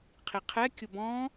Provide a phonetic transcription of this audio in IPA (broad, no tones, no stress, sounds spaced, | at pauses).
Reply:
qʰ i qʰ ɛ kʲ ʊ b ɔ̃